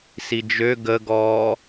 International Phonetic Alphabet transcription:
s i d͡ʒ ø ɡ ə ɡ ɔː

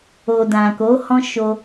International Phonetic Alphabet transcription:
o˨ d ã˨ k o˨˦ h ɔ̃˦ ʃ o˧

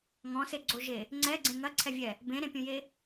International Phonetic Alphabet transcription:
ŋ ɔ̃ s e ɡ͡ǀ o ʒ e | ŋ͡ǀ ɛ ɡ͡ǀ ẽ ŋ ɐ ǀʰ ɛ vʲ ɛ | b ẽ ɾ ẽ pʲ ũ j e

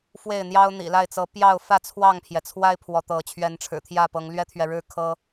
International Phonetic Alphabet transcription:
f w e˥˨ ɪ̯ n̪ j ɑ˦ ʊ̯ n̪ ḭ˨˩ l a˥˨ ɪ̯ t͡s ɤ˨˦ p j ɑ˥˨ ʊ̯ f ä˥˨ t͡sʰ w ɑ˥˨ ŋ pʰ j ɛ˩ t͡sʰ w a˦ ɪ̯ pʰ w ɔ˨˦ t̪ ɤ˨˦ t͡ɕʰ ɥ ɛ˨˦ n ʈ͡ʂʰ ɻ̩˨˩ t̪ʰ j ä˥˨ p ɤ˨˦ ŋ l ɥ ɛ˦ t̪ʰ ɥ ɛ˨ ɻ ɻ̩˦ kʰ ɤ˦

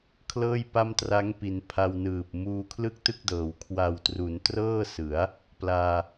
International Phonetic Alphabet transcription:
kʰ l ɤː˥˩ j p a˥˩ m t r a˦˥ ŋ p i˩˦ n pʰ a˧ w n ɯː˨˩ p̚ m uː˧ kʰ l ɯ˥˩ k̚ t ɯ˥˩ k̚ d ɤː˩˦ w kʰ w a˨˩ w t r u˩˦ n t r ɤː˥˩ s ɯ˩˦ a̯ | p l aː˧

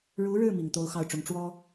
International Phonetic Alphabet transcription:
ɻ u˧˥ ɻ ɻ̩˥˩ m i˨˩ ŋ t̪ o˧˥ ʊ̯ x ɑ˥˩ ʊ̯ ʈ͡ʂ ʊ˧˥ ŋ ʈ͡ʂ w ɔ˥

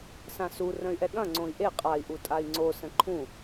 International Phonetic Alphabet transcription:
s ã s u r ə̃ y̯ ʔ ɛ ɠ ɐ̃ ŋ͡ǀ õ i̯ ʔ e qʼ a i̯ ʔ u tʼ a i̯ ŋ͡ǀ o s ə̃ ǃʰ ũ

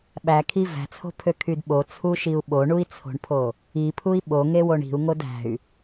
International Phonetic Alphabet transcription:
ɓ æ kʰ i v æ̤ t͡sʰ o̤ pʰ ø kʰ y d ɓ o t͡sʰ u ʃ i u̯ ɓ o ɳ u i̯ t͡sʰ o̤ ɳ pʰ o | i pʰ u i̯ ɓ o ŋ e w o ɳ i̤ u̯ ŋ o d æ̤ y̯

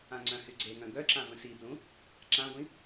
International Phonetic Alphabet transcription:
ã ŋ͡ǀ œ̃ h y ɡ͡ǀ e ŋ œ̃ ɡ œ ǁ ã v ə̃ s i b l ũ | ǁ ã ɡʷ ĩ

